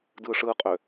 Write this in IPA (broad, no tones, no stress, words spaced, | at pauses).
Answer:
dɯʂɯqʼø